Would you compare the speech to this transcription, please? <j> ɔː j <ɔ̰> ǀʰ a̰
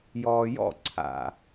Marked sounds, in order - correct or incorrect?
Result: correct, correct

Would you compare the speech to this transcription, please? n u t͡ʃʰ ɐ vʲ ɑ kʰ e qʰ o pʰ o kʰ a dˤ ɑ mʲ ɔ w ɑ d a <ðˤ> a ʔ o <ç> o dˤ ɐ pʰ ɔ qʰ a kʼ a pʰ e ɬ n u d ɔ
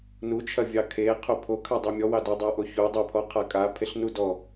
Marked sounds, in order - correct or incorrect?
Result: incorrect: dˤ, correct

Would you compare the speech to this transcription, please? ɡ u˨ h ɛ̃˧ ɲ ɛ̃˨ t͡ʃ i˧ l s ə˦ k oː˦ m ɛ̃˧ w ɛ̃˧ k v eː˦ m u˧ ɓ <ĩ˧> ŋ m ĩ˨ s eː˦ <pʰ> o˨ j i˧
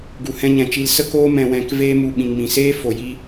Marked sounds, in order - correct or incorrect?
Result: incorrect: ĩ˨, incorrect: f

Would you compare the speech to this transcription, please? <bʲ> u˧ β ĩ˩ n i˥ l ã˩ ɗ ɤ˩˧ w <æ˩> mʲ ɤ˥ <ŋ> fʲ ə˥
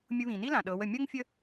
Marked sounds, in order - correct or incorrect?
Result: incorrect: mʲ, incorrect: ə˩, correct

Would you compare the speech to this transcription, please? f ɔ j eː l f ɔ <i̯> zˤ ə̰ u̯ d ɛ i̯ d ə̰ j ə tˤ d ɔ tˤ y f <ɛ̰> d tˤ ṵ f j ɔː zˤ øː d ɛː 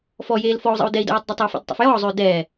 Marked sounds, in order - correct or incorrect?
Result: incorrect: u̯, correct

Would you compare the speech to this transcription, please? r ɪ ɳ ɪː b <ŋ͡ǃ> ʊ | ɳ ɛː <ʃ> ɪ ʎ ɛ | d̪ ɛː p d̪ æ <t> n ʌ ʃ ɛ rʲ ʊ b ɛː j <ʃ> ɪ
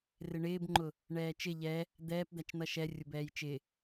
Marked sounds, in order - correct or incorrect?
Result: correct, incorrect: t͡ʃ, incorrect: t͡ʃ, incorrect: t͡ʃ

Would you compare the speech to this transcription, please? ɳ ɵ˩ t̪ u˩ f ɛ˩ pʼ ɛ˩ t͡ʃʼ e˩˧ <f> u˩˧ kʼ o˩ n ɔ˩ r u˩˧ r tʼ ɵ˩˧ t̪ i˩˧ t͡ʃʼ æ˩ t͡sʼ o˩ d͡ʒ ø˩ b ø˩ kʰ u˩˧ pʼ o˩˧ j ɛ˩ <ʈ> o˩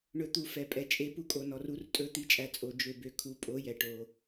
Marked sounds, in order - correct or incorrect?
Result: incorrect: p, correct

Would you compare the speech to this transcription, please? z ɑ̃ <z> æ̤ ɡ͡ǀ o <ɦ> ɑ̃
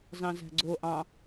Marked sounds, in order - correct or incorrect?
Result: correct, incorrect: ʔ

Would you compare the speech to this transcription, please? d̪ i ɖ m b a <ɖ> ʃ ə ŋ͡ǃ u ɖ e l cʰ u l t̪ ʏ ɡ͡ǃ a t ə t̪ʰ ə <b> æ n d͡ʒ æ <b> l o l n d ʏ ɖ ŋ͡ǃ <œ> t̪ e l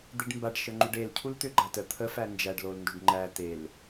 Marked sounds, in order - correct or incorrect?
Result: correct, incorrect: f, incorrect: ɖ, incorrect: æ

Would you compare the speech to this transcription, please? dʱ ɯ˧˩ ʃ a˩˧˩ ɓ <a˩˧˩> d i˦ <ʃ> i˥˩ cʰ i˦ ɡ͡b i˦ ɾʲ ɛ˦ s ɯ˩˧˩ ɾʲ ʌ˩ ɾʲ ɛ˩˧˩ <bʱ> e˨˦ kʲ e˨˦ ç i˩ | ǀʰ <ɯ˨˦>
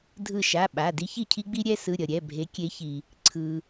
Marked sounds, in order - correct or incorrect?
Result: correct, incorrect: ç, correct, incorrect: ɯ˩

